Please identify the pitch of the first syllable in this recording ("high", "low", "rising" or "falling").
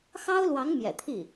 high